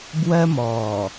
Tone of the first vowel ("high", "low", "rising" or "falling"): high